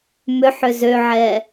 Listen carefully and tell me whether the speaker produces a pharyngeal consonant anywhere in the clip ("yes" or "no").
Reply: yes